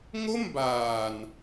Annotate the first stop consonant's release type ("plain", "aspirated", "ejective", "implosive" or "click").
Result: plain